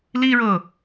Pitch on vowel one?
high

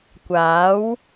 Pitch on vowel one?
rising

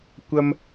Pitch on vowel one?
high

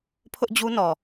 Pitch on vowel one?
high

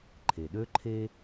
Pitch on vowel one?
low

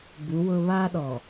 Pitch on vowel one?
rising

